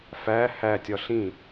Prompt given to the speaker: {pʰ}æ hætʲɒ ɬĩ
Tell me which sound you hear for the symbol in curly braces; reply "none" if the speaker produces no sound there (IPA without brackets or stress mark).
f